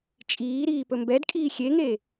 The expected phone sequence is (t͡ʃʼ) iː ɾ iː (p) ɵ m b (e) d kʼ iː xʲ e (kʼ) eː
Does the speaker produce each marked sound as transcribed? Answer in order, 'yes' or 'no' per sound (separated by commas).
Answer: yes, yes, no, no